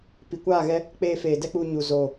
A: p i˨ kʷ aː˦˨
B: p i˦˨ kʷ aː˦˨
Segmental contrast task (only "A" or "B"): A